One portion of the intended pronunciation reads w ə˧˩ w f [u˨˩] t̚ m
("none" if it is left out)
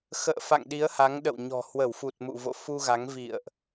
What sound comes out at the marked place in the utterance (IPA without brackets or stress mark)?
u˨˩